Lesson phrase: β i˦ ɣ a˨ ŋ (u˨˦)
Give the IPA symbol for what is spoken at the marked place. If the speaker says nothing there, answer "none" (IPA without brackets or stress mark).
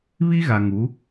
u˨˦